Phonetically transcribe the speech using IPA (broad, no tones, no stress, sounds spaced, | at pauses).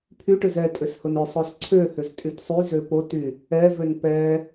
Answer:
pʰ y ʈ ʏ z ɛ tʼ ʏ s h ʊ n ʏ sˤ o s ǀʰ ø h ʏ z tʼ y t sˤ y z ø p o t y | ɛ v ø n p ɛ